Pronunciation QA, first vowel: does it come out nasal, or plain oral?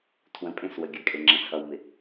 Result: nasal